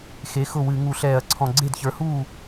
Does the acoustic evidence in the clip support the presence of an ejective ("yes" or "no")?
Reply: no